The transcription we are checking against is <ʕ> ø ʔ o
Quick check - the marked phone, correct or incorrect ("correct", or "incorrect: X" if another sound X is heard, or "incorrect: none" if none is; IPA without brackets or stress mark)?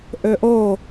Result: incorrect: ʔ